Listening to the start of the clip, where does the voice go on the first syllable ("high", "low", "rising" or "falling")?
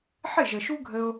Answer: falling